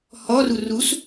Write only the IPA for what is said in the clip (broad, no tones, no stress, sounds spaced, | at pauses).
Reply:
h ɔ r u r u s